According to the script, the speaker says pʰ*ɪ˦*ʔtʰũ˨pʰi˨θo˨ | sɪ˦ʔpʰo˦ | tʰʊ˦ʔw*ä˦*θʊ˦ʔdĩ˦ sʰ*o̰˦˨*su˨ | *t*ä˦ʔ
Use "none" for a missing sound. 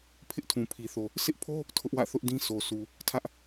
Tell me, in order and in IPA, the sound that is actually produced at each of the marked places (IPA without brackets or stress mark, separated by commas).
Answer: ɪ˦, ä̰˦˨, o˨, tʰ